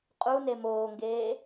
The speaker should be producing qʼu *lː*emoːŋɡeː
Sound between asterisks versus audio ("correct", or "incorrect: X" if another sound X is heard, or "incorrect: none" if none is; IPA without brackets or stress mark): incorrect: n